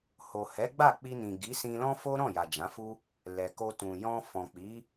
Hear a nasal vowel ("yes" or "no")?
yes